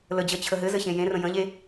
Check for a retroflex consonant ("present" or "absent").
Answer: absent